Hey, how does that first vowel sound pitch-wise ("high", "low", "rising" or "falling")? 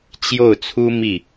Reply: falling